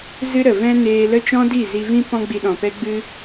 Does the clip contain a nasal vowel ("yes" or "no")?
yes